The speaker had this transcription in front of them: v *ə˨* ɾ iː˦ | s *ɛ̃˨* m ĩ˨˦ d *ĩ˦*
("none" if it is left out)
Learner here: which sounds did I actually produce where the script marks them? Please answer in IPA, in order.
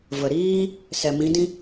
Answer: ə˨, ɛ˨, ĩ˦

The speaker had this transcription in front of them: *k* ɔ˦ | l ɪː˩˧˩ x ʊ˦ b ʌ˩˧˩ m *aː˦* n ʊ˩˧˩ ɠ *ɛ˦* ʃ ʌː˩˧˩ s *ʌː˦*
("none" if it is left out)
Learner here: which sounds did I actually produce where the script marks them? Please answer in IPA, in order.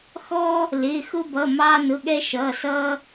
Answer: x, ɑː˦, ɛ˦, ʌː˦

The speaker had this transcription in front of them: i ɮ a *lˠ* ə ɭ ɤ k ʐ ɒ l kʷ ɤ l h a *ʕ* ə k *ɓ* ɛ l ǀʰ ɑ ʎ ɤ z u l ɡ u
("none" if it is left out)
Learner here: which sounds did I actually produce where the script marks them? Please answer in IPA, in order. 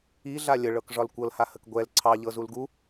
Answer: lʲ, h, ɡʷ

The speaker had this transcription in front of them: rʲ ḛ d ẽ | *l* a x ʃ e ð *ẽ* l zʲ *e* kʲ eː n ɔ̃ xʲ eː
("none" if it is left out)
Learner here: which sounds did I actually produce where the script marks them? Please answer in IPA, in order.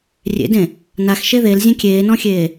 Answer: n, e, ẽ

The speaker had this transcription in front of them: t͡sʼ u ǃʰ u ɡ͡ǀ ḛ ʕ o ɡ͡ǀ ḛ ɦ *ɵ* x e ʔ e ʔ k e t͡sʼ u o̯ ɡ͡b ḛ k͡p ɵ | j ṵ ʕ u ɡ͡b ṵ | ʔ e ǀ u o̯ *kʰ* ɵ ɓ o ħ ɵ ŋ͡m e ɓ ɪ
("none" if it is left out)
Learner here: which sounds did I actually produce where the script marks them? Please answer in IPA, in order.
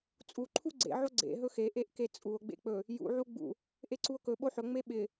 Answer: ɵ, k

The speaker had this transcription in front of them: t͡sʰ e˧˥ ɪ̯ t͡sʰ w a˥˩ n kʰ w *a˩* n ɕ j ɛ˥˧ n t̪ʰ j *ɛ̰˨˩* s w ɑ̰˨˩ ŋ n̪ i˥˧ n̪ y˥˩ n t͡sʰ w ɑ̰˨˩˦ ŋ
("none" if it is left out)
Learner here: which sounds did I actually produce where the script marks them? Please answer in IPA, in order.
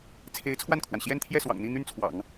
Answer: a˩, ɛ˥˩

